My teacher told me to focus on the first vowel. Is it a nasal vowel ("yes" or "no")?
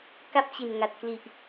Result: no